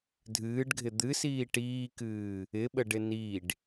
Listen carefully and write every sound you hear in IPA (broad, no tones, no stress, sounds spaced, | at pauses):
dʱ ɨː ɖ ɡʱ ɪ d̪ ɨ s iː ʈ iː k ɨː | ɪ ɓ ə ɖ ɪ n i ɖ